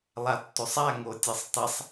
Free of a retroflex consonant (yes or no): yes